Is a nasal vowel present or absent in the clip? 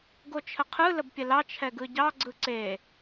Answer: absent